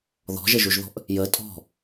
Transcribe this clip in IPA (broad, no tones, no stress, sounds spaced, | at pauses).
ð ɔ̤ ʒ ə ʒ u ʒ ð ɔ̤ ʔ | j ə tʼ ɔ̤